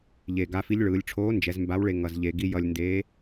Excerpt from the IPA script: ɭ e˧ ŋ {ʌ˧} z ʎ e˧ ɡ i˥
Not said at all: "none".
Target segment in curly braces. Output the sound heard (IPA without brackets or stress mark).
ʌ˧